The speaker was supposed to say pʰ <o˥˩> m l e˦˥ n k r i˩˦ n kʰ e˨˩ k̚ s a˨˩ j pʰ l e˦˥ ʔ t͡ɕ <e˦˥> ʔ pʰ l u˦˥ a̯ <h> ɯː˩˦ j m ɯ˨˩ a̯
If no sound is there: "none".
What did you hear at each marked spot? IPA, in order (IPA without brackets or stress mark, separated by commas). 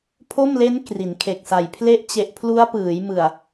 o˥˩, e˨˩, p